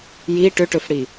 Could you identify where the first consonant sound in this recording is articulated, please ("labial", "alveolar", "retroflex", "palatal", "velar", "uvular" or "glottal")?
palatal